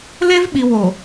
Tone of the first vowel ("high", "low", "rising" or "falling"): high